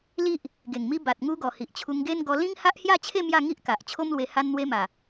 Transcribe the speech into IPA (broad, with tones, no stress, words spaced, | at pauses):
li˦ʔ | ɡe˨˩ŋmi˧ ba˨t̚ŋu˧ɡɔ˨˩ hi˨ʔt͡ɕʰu˧ŋɡe˦n ɡɔ˧lĩ˦ŋ ha˦ʔhja˥˧t͡ɕʰe˥˧ mja˥˧ŋi˦ʔka˨ʔ t͡ɕʰo˦mlwe˧ ha˧nn̪we˧ma˨˩